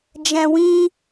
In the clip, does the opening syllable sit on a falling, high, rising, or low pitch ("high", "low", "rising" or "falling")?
low